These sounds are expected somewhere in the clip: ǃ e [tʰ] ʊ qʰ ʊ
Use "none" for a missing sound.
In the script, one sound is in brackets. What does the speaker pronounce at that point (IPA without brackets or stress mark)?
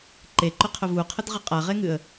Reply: ǃ